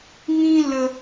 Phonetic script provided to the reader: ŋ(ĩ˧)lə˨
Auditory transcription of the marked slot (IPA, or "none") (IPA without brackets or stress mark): ĩ˧